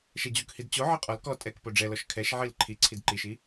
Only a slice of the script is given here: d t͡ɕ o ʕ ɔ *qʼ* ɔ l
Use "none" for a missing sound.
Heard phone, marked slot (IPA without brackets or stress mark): qʼ